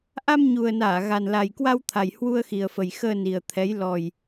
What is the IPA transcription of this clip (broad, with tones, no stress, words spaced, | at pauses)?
ʔa˧mɲu˨˩ə̯naː˧˩ ɣa˨˩nla˨˩jkwa˧wt̪ʰa˨˩j hwu˧ə̯xi˨˩ə̯fə˨˩j xəː˧ni˨˩ə̯t̪ʰɛ˨˦j lɔ˨˩j